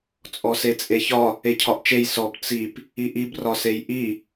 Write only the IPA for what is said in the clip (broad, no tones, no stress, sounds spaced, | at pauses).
t͡sʼ ɔ s e t͡sʼ e ç ɒ | e cʰ ɒ ʔ t͡ʃ e j s ɔ b t͡s i p | i ʔ i b r ɒ s e j ʔ i